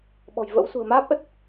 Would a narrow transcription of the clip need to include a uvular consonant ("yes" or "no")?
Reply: no